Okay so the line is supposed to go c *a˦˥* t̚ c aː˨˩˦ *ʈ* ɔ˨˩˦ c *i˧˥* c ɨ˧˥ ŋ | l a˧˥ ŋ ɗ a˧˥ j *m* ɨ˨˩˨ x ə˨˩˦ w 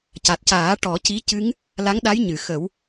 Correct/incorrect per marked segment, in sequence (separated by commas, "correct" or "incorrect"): incorrect, correct, correct, incorrect